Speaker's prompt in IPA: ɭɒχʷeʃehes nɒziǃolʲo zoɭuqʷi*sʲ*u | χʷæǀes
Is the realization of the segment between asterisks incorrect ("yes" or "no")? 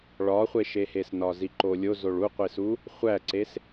yes